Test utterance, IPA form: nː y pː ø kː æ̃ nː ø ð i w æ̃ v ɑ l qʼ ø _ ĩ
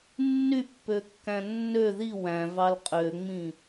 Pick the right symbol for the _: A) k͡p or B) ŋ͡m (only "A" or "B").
B